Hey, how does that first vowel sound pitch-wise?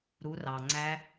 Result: rising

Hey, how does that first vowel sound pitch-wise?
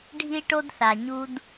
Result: high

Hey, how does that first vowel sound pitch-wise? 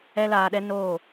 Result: high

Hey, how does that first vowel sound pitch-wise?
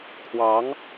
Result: rising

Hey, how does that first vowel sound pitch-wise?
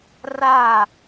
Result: falling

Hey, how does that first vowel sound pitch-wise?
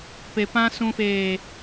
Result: low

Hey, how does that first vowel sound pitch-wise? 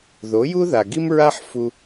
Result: rising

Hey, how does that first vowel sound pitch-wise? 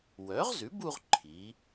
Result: rising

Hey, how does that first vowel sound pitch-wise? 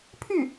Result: falling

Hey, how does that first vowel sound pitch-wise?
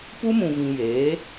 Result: high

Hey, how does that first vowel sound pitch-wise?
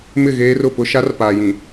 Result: falling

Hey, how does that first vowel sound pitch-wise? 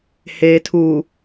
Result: low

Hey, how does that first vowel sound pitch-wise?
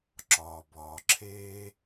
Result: low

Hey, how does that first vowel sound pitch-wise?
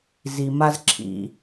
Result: low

